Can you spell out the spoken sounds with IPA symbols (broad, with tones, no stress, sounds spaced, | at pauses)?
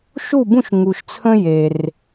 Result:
ʃ u˥˧ b ũ˥˧ ʃ ŋ u˧ ʃ t͡sʰ ə̃˥ j e˧ r